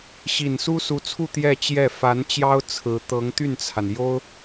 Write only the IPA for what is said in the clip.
ɕ i˨˩ n s u˥ s u˧˥ t͡sʰ u˥˧ t̪ j ɛ˥˧ t͡ɕ j ɛ˥˩ f a˧˥ n t͡ɕ j ɑ˥ ʊ̯ t͡sʰ ɹ̩˧˥ t̪ ɤ˧˥ ŋ t̪ y˥˩ n t͡sʰ a˩ n j o˥ ʊ̯

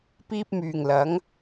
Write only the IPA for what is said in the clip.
p iː˥ p̚ m yː˨ ŋ l ɐ˨˥ ŋ

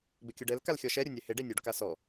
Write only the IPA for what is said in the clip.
b ɪ kʲ ʊ ɖ ɛ l k a l xʲ ɔ ʃ ɛ ɾʲ ʊ nʲ ɛ h ɪ ɖ e nʲ u ɖ k a s ɔ

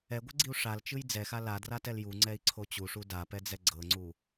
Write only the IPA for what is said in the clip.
ɛ ɡʷ ɤ ɡ͡ǀ i u̯ ʂ a l t͡ʃ ɯ j d͡z ɛ x a l a d r a t ɛ l j u ŋ͡ǀ ɛ i̯ ǀʰ o t͡ɕ u ʂ u d a p ɛ d͡z ɛ ɡ͡ǀ ɤ ŋ͡ǀ u

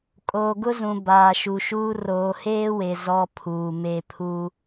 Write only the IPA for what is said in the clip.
kʼ oː˨ ɡ ʊ˦ z ũ˨ b aː˨ ʃ u˨ ʃ uː˦ r oː˨ h eː˦ w e˨ z ɔ˦ pʰ uː˨ m e˦ pʰ u˦

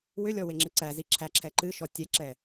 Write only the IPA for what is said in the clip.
w ʏ lʲ ɔ w e ŋ͡ǁ ɨ ǀ æ z i ǁʰ æ ǁʰ ɛ ǃ ɨ ʃ ɔ tʲ ɛ ǁ ɛ

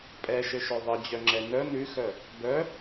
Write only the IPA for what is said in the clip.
pʼ ɛ ʃ ɘ ʃ œ ðˤ ɘ d͡ʑ œ ŋ͡ǁ ɛ n œ n ʉ x œ | b œ

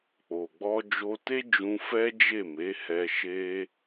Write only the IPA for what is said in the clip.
k͡p o˨ ɡ͡b ɔ˧ d͡ʒ o˧ t e˦ d͡ʒ ũ˧ f ɛ˦ d͡ʒ e˦˨ m e˨˦ h ɛ˧ ʃ e˦

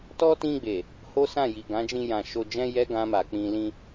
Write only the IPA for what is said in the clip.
t ɔ˦ t ĩ˧ ɡ͡b e˨ | h o˦ s ã˦˨ j i˨ ɡ ã˨˦ d͡ʒ ĩ˧ j ã˨ ʃ o˧ d͡ʒ ɛ̃˦ j ɛ˦ ɡ ã˧ m a˨ k͡p ĩ˧ l ĩ˦

